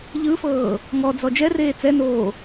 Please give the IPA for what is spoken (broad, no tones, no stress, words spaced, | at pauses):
ʎɯfɤː | ŋɔd͡zɔ d͡ʒɛreː t͡sɛnoː